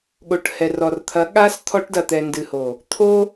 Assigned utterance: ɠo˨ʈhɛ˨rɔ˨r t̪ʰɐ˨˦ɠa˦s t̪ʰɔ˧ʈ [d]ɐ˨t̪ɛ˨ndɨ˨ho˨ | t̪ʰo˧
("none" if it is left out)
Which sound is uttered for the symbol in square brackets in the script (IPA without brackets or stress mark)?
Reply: d